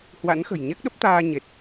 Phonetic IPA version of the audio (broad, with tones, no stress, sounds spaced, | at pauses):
h w a̰˧˥ n x ə̤˨˩ j ɲ ɛ˦˥ k̚ ɗ ə˦˥ p̚ t̪ aː˧ ɲ e˨˩ t̚